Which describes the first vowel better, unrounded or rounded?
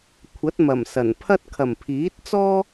unrounded